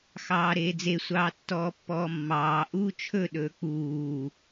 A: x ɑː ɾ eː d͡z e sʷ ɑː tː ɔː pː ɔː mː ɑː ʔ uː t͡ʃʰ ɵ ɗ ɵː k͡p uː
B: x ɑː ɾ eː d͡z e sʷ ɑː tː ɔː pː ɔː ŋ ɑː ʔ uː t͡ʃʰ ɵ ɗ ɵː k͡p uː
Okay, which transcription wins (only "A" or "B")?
A